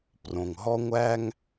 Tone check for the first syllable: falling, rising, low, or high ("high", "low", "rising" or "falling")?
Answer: low